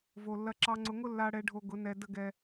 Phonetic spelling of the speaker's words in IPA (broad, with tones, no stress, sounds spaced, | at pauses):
v o˨ lː ɐ˧ ǁ ɑ˧ ŋ͡ǀ ʊ˧ ŋ ʊ˦ lː a˧ ɽ ɛ˧ ɖʱ o˧ ɡ ʊ˨˦ n ɛ˨ d ə˦ ɡ ɛ˧